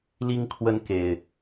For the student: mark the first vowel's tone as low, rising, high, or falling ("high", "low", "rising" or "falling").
high